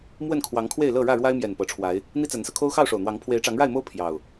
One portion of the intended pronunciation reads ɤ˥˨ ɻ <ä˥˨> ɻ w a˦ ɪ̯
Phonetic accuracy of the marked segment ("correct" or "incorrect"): correct